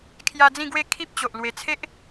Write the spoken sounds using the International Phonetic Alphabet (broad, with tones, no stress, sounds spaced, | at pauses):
kʰ j a˧ d͡z ĩ˥˧ ɡ w e˥˧ kʰ i˦ p̚ t͡ɕ o˨ ʔ l w e˧ t͡sʰ e˦ ʔ